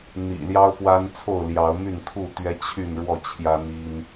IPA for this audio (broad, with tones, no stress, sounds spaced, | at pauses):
n̪ ḭ˨˩ l j ɑ˦ ʊ̯ p w a˦ n t͡sʰ o˥˨ ʊ̯ l j ɑ˨˦ ʊ̯ m y˥˨ n kʰ u˥˨ t̪ ɥ ɛ˦ t͡ɕʰ y˥˨ n ɻ w ɔ˥˨ t͡ɕʰ j ä˦ n̪ i˦ n